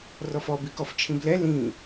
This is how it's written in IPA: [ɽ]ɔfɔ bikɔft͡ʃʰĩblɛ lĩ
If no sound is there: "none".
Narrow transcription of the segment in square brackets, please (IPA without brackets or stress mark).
r